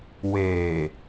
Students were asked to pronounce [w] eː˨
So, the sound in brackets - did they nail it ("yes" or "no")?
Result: yes